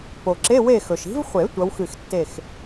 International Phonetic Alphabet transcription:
po˩ǁe˧˥˧we˥˨xɵ˩ʃ i̤˨˦vχʷe˨˩˦ tʷɐ˨˦wxɨ˧˩xtːe˥˨x

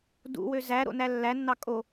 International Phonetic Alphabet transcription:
dṵwø zæ ɾo̰nælːænːɑ kʼo

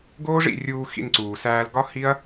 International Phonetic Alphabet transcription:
ɡoː˦ʐḭ˦˨ rʲuː˧ xḭ˧nǀuː˨sæː˧l ɡɒ˦ hi˦ɐ̯

